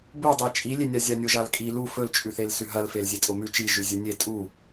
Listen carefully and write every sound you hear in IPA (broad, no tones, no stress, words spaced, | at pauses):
budˤe t͡ʃʼilʲenʲa zʲanʲoʒalkʼi lu fɵlt͡ʃʼʉθel sʉɦɐlfel zʲetʼomʉ t͡ʃiʒʉ zʲɨnʲe tʼu